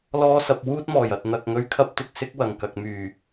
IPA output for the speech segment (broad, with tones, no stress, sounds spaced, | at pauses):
l ɔː˧ s ɐ˨ p̚ w uː˥ t̚ m ɔː˨˩ j ɐ˨ t̚ n̪ ɐ˧ k̚ ŋ ɵ˧ ɥ kʰ ɐ˥ p̚ t̪ ɪ˧ k̚ s ɪ˥ k̚ w ɐ˨˩ ŋ k ɐ˨ k̚ m yː˨˩